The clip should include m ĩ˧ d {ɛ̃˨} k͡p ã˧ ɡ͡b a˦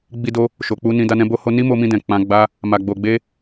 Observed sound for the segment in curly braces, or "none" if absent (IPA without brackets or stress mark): ɛ̃˨